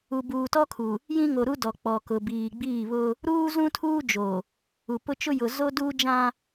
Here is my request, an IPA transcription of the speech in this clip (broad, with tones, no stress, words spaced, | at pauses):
u˨buː˨tɔ˦kʰu˨ | jĩ˦ŋo˨ ɾu˦dɔ˨ k͡pɔ˨kʊ˨biː˨ ɡ͡biː˦˨βʊ˦ | ɾuː˦zũ˦tʰuː˦d͡ʒo˨ | u˨pʊ˦ t͡ʃʊ˦jʊ˨ zo˦duː˦d͡ʒã˦